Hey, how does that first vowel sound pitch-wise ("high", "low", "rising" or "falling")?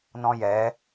high